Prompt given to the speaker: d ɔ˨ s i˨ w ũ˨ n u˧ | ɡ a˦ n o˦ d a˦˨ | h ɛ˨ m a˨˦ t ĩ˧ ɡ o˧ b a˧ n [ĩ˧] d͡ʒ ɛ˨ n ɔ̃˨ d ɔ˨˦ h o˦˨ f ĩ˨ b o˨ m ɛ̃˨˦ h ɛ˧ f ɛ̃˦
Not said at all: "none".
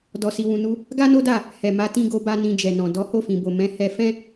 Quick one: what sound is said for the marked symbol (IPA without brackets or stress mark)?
ĩ˧